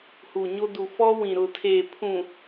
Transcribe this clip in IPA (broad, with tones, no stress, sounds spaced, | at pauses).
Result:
h u˨ ɲ o˦ d u˨ f ɔ˦ w ĩ˨ ɾ ʊ˨ tʰ eː˨ pʰ ũ˨